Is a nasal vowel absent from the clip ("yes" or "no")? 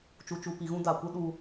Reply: no